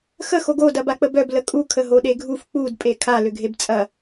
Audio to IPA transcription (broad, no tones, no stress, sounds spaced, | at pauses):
x ə x o ɡ o d ɐ b a k͡p ə b œ b l ə kʼ u kʰ ə ɦ o ɗ e ɡʱ u f k͡p u d pʼ e kʰ a l ʏ ɡʱ e b t͡sʼ ɐ